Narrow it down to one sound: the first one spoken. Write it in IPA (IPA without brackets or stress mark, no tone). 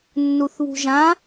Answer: nː